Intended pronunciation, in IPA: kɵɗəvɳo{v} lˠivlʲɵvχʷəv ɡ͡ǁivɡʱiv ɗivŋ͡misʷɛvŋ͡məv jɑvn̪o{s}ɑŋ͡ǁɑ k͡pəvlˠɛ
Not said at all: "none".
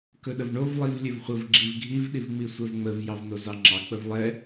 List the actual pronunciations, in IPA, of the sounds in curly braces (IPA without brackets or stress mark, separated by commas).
v, z